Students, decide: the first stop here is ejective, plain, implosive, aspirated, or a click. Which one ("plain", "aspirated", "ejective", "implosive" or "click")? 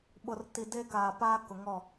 implosive